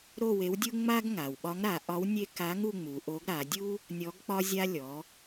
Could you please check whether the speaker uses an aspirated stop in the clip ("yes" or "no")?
no